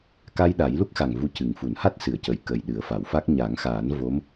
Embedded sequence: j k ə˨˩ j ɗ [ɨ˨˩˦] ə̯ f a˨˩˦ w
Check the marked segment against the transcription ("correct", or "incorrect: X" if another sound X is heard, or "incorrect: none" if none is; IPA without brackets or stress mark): correct